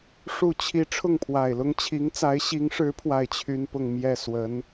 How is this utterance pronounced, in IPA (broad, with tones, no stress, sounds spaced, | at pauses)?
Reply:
ʂ u˥˩ t͡ɕʰ i˥ ʈ͡ʂʰ ʊ˥˩ ŋ pʰ w a˨˩ ɪ̯ l ʊ˥ ŋ t͡ɕʰ i˧˥ ŋ t͡s a˧˥ ɪ̯ ɕ i˧˥ ŋ ʂ ɻ̩˧˥ pʰ w a˥˩ ɪ̯ t͡ɕʰ y˥ n p ʊ˥˧ ŋ m j ɛ˥˩ s w ə˧˥ n